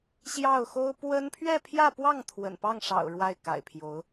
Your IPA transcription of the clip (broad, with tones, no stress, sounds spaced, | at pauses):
ɕ j ɑ˥˩ ʊ̯ x o˥ ʊ̯ p w ə˥ n pʰ ɥ ɛ˥˧ pʰ j ä˥˧ p w ɑ˥˩ ŋ t̪ʰ w ə̰˨˩ n p ɑ˥˩ ŋ ʂ ɑ̰˨˩ ʊ̯ ɻ w a˥˩ ɪ̯ k a̰˨˩ ɪ̯ pʰ j o˧˥ ʊ̯